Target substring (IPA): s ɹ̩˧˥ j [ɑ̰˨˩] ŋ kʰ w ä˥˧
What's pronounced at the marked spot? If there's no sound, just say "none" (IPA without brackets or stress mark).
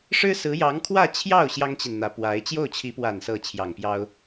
ɑ˧˥